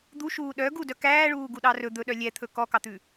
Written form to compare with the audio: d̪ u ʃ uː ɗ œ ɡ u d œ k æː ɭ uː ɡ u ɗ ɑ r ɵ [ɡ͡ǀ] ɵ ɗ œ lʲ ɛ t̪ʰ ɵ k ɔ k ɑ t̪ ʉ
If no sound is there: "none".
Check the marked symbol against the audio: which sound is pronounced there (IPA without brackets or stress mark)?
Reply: d̪